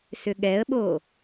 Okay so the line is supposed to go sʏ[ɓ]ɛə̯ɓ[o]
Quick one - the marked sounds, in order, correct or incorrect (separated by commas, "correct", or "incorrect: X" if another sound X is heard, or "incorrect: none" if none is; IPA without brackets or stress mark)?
incorrect: ɠ, correct